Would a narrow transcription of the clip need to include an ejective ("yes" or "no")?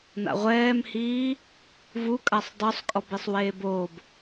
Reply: yes